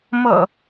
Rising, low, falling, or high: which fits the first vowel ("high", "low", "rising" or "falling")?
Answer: low